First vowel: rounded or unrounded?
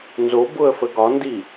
rounded